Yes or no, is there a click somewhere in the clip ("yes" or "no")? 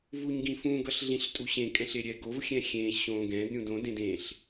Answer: no